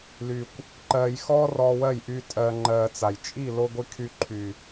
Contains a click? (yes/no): yes